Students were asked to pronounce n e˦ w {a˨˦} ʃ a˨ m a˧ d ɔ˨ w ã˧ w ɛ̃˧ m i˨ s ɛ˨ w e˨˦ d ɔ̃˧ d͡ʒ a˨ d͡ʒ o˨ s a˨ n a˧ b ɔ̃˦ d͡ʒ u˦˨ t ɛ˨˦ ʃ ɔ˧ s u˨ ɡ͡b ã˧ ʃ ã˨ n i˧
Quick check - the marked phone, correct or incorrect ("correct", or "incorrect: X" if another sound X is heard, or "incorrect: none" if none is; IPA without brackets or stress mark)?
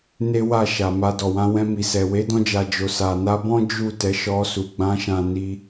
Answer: incorrect: a˦˨